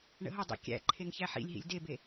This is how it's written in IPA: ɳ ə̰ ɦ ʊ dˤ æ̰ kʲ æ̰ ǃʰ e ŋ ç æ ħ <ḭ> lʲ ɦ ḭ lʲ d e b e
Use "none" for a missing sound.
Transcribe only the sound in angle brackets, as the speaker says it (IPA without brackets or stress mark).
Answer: ḭ